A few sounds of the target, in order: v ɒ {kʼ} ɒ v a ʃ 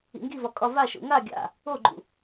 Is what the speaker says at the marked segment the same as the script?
yes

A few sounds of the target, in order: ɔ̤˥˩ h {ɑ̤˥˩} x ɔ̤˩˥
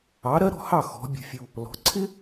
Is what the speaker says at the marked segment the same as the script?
no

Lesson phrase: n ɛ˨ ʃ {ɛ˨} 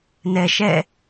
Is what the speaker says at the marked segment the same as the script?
no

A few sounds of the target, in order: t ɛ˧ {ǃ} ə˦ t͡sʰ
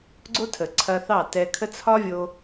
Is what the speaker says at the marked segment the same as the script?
no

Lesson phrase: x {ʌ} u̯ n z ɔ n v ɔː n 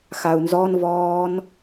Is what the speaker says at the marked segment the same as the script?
no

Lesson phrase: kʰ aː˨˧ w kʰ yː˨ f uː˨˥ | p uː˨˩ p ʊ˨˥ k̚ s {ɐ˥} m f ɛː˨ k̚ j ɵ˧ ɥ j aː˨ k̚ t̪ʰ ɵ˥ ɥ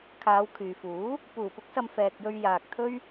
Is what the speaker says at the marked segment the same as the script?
no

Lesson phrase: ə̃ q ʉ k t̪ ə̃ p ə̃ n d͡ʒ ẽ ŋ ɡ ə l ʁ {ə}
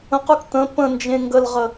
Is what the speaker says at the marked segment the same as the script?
yes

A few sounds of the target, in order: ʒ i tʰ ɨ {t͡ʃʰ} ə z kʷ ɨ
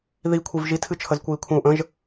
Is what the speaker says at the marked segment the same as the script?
yes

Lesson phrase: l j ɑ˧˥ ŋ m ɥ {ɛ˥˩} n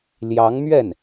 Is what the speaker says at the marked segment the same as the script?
yes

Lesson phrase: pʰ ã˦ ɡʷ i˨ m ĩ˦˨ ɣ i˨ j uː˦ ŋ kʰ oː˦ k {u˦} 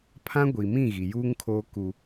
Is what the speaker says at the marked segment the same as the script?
yes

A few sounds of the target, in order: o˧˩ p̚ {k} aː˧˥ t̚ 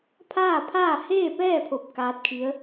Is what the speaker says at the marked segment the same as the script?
yes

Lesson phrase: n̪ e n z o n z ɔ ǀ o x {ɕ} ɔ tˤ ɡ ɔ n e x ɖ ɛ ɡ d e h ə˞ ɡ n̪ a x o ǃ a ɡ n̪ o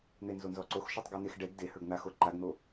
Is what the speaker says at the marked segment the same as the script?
no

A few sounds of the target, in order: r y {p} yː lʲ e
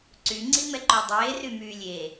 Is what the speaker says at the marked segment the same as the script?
no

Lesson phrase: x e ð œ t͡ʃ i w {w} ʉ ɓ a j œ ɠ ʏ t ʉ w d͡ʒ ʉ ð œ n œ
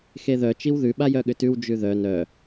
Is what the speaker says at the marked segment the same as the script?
no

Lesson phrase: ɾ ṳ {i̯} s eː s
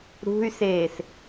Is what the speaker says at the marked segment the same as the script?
no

